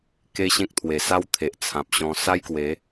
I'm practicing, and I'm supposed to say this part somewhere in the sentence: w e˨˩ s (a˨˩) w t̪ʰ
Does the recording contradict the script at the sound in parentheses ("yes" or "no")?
yes